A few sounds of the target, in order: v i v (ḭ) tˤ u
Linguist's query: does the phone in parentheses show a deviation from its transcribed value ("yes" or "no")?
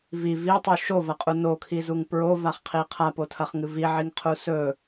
yes